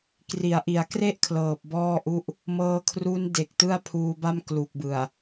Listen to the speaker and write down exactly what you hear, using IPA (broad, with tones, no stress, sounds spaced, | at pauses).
k r i˩˦ a̯ ʔ i˩˦ a̯ k r e˥˩ ʔ kʰ l ɤː˨˩ p̚ b ɔː˥˩ ʔ u˥˩ ʔ | m ɤː˧ kʰ r u˦˥ n d e˨˩ k̚ t ɯ˥˩ a̯ pʰ uː˧ b a˥˩ m k l u˨˩ k̚ b ɯ˨˩ a̯